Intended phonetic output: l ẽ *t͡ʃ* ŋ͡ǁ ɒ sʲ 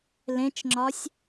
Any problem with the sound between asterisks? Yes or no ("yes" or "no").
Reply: no